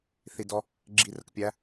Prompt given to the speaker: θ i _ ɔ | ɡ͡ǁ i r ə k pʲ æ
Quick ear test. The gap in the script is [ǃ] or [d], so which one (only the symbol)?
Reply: d